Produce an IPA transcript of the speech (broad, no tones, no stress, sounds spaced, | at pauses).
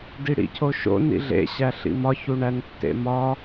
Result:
d i ɽ ḭ cʰ o ʃ o̰ n ḭ ɮ ḛ ɕ æ ɬ ḭ m ɒ ç u ɳ æ n tː ḛ m ɒ